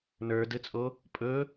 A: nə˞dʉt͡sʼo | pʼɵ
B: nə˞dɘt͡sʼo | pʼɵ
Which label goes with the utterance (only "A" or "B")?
B